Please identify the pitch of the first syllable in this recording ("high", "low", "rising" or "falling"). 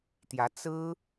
rising